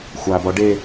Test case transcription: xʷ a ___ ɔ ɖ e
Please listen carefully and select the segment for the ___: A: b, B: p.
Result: A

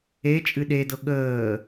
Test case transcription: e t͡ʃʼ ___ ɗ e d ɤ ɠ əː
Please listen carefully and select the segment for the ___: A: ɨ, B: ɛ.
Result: A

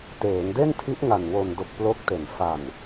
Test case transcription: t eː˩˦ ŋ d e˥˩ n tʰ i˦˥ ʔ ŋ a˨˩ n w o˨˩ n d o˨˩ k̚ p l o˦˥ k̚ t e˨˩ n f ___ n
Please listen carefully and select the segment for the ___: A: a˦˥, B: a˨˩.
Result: B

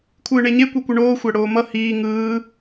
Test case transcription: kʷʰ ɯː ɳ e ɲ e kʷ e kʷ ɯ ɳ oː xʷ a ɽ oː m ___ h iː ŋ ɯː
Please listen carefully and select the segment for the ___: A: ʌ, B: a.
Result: A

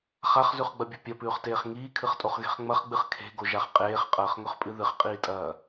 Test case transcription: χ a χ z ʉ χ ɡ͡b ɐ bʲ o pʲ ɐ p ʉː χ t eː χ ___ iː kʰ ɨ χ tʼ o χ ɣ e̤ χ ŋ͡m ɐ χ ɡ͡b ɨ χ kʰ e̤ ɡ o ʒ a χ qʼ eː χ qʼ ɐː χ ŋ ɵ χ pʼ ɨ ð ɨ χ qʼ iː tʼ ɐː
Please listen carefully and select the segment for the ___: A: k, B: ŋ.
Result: B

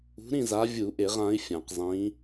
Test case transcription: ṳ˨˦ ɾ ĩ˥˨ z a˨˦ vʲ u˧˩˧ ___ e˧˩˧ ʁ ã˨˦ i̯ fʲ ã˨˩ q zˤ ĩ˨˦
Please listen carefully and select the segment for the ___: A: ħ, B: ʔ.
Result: B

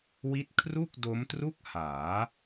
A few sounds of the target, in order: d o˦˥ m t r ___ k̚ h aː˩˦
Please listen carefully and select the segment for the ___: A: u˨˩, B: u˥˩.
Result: B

